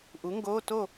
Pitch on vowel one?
rising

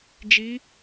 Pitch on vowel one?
rising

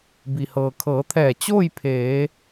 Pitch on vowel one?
low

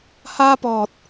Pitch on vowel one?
high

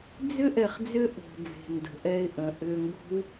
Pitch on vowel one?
high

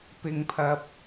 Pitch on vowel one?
low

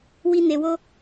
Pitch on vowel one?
high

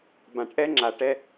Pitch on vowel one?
low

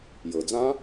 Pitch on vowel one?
low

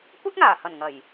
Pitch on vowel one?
high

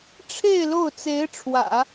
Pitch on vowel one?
falling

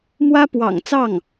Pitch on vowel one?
high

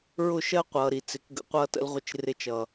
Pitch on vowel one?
falling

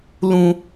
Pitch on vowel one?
high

